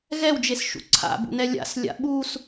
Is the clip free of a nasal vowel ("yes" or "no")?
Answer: yes